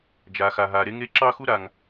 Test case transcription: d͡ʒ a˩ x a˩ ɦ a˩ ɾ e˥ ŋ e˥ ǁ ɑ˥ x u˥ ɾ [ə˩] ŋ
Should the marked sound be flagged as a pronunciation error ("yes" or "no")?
yes